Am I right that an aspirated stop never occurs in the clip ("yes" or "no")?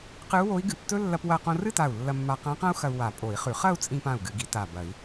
yes